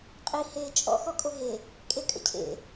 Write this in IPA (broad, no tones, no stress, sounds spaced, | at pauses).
qʼ i h eː t͡ʃʼ ɔ̰ x ɔ kʼ o ɦ e | kʼ e kʼ ə̰ cʰ ḛ